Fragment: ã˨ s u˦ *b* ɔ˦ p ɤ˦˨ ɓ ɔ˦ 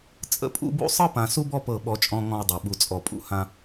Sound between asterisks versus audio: correct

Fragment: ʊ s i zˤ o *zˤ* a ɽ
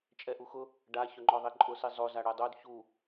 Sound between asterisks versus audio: incorrect: z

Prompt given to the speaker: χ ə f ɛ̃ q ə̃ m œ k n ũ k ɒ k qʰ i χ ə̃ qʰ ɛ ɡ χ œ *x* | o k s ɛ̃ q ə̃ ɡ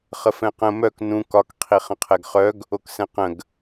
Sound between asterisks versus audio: incorrect: ɡ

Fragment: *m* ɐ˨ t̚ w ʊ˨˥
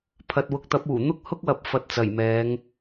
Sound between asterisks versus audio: incorrect: pʰ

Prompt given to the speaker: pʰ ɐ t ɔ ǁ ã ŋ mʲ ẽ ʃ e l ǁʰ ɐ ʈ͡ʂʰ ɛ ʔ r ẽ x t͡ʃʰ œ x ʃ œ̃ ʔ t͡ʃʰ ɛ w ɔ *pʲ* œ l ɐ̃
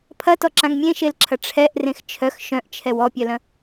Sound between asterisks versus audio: correct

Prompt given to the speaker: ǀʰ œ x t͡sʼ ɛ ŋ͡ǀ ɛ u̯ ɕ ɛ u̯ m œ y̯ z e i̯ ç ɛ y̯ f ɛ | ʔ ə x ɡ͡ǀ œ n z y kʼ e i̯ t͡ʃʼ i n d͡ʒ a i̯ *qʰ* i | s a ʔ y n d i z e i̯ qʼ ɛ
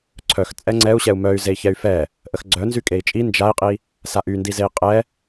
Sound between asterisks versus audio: incorrect: qʼ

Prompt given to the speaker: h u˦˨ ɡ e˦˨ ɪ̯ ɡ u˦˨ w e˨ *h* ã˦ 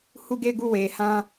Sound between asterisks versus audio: correct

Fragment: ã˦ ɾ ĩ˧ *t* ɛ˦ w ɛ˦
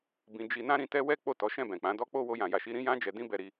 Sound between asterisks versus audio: correct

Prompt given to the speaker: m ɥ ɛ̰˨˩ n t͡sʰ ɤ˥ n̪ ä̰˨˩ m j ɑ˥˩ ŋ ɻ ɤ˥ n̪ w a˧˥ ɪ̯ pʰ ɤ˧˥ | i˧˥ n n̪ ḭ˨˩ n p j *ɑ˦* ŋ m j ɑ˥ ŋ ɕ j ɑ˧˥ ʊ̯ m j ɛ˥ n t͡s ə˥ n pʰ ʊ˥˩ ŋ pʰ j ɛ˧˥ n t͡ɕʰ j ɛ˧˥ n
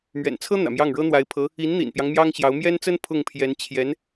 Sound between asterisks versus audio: correct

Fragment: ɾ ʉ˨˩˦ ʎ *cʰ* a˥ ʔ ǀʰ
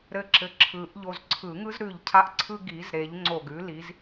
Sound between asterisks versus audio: correct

